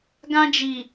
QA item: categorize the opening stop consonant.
plain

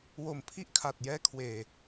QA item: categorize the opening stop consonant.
aspirated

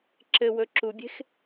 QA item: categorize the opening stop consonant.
click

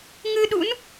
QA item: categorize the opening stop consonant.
implosive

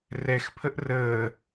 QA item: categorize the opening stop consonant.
aspirated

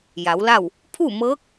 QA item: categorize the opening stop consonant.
aspirated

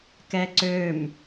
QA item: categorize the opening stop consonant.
plain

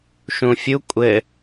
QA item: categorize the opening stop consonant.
ejective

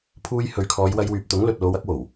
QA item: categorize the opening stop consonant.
aspirated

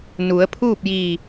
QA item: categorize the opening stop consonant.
aspirated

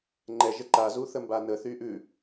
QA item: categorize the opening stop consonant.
click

